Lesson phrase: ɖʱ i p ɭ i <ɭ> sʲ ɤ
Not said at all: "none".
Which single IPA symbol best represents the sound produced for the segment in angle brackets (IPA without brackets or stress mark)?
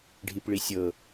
none